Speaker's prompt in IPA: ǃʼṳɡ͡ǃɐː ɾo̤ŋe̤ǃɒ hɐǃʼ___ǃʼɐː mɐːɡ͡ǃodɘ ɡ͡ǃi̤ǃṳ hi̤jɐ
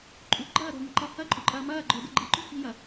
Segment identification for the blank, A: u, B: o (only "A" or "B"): A